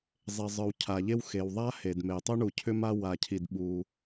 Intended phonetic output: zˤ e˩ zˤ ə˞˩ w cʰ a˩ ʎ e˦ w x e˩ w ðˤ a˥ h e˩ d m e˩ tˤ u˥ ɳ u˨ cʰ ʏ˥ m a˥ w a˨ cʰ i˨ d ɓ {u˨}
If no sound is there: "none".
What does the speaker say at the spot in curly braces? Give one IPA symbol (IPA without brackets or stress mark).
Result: u˨